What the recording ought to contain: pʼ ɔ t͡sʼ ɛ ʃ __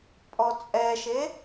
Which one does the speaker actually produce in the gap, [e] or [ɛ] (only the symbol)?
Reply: e